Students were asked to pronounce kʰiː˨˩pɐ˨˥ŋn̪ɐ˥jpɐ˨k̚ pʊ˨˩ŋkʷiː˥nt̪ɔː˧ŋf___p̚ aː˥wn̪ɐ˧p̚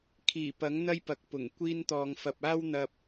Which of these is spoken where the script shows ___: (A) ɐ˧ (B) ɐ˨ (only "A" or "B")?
A